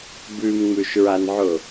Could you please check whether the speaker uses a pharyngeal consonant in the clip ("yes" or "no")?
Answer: yes